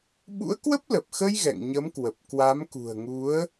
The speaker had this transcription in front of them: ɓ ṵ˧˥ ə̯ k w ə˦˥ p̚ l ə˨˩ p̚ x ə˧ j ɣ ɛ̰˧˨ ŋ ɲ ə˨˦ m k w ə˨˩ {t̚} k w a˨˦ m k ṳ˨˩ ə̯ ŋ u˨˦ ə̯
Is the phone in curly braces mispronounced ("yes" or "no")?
yes